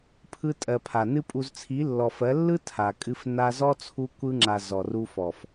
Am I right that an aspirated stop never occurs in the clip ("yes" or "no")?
no